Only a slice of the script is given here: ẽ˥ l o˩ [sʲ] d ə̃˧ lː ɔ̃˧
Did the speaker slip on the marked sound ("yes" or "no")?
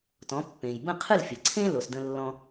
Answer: yes